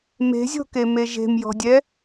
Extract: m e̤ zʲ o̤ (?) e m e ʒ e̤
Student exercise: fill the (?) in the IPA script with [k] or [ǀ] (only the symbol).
k